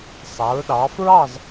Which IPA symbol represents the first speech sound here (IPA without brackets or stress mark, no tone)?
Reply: sˤ